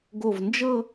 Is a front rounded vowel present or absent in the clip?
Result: absent